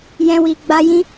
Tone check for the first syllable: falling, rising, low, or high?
high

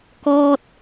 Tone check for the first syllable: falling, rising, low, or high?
falling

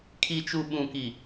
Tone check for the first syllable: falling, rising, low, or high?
low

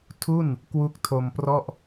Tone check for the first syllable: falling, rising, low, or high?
falling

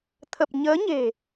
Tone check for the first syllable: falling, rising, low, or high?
low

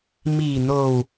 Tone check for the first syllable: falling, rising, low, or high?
low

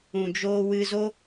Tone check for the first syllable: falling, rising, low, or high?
low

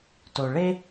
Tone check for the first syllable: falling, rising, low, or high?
high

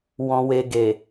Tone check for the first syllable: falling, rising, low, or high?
low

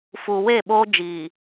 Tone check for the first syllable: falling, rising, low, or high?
low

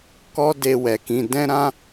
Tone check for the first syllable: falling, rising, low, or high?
high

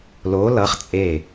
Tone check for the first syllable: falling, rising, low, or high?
rising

